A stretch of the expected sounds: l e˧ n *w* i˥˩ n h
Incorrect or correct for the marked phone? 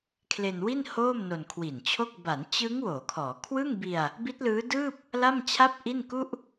correct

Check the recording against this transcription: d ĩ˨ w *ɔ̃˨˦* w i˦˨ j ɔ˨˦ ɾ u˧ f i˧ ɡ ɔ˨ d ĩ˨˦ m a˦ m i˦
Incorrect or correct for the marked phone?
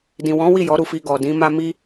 correct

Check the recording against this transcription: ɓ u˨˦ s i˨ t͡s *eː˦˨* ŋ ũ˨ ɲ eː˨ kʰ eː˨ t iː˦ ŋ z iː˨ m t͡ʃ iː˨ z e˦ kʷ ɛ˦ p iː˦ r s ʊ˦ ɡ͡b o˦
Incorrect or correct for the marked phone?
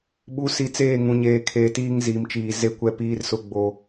correct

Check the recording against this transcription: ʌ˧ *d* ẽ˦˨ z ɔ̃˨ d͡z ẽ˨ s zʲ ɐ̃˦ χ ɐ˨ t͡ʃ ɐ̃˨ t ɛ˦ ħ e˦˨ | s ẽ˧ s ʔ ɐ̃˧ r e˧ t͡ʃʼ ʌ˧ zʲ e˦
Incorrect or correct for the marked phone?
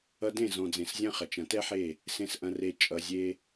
correct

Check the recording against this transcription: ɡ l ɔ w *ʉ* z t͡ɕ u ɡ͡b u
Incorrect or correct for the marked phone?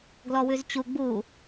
correct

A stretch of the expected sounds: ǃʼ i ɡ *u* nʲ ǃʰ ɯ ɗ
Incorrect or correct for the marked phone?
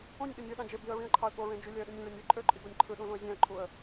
incorrect: o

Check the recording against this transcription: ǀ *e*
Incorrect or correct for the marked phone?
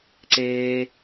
incorrect: eː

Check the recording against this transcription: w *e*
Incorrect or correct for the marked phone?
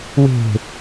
incorrect: e̤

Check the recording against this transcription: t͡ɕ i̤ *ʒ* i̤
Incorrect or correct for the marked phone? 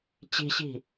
incorrect: ɕ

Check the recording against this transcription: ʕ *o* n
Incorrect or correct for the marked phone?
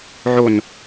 correct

